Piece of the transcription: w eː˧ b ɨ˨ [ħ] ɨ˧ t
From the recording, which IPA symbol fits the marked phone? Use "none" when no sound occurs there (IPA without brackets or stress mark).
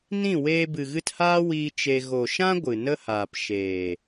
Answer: ɣ